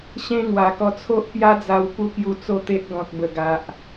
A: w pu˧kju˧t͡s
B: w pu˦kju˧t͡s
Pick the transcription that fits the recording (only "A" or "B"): B